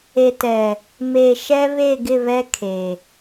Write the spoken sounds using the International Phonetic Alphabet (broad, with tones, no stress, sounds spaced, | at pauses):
e˨ t ɛ˨ | m e˨ ʃ ɛ˦ β e˦˨ ɡ ɪ˦˨ β ɛ˦ kʰ e˨